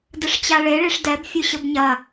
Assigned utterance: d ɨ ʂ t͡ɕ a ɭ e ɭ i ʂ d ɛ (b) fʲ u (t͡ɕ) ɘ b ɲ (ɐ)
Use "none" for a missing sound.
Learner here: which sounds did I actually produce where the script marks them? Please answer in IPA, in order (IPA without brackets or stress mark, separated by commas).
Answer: b, ɕ, ɐ